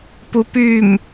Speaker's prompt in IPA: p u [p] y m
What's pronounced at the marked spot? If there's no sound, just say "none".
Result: p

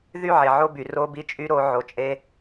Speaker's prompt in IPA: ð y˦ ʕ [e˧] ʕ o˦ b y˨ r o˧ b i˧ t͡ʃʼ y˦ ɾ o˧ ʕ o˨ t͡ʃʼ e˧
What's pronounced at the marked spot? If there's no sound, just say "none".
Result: e˨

